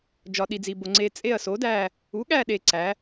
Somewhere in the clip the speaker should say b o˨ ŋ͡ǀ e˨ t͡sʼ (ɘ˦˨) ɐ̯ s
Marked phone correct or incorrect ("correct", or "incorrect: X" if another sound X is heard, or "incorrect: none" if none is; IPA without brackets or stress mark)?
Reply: incorrect: e˦˨